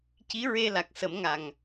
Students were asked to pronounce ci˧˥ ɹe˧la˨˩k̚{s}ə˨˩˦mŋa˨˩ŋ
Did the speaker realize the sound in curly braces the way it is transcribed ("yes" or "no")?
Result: yes